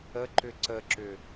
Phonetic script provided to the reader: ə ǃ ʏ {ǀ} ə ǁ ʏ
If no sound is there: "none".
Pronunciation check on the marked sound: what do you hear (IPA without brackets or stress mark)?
ǀ